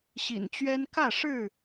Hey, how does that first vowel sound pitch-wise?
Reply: low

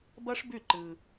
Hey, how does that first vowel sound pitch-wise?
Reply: high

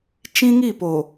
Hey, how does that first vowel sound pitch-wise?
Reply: high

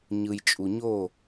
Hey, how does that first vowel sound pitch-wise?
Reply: low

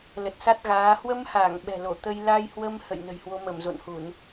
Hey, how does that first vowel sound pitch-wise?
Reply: low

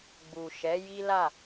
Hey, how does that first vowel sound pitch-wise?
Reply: low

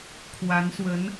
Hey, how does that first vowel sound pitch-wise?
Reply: rising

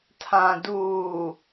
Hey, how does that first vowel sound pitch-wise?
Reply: low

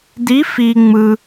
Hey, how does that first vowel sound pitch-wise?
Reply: rising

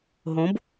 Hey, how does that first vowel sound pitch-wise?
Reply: rising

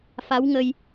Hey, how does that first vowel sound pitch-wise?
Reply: rising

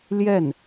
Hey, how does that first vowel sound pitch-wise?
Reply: falling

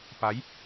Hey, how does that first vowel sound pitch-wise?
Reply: rising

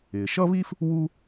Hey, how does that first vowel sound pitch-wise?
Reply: low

